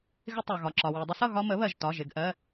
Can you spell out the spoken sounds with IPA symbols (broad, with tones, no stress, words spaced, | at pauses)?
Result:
ɣɪ˦tˤɑ˩ɣɒ˩ǁɒ˩ wɜ˩dˤə˦sʌ˥˨ ɣɒ˦mə˩˥βɜ˩ʒtɒ˩˧˩ʒ ɪ˥˨ɡʔɜ˩˧˩